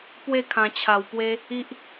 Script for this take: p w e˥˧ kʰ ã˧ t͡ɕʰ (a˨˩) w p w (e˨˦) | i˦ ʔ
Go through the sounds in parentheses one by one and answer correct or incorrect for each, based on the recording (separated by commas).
incorrect, incorrect